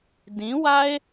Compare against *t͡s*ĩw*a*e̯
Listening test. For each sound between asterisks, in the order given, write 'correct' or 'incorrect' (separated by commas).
incorrect, correct